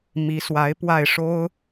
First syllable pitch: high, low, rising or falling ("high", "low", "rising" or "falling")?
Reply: rising